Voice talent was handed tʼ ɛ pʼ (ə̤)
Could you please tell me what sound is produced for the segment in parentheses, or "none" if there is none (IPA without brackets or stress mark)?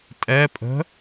ə̤